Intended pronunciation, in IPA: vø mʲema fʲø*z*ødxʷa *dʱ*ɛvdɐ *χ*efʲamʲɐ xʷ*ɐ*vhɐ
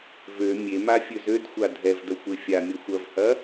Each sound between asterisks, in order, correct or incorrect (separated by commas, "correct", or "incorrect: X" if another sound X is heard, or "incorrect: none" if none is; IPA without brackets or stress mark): correct, correct, incorrect: xʷ, correct